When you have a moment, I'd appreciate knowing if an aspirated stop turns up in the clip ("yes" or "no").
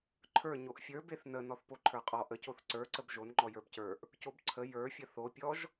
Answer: yes